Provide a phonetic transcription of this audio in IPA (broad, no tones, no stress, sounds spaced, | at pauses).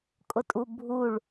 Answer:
kʼ ʊ tʼ u bʱ u ɭ